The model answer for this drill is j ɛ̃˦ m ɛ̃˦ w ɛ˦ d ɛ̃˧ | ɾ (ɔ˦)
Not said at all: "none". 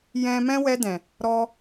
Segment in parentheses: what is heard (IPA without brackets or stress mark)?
ɔ˦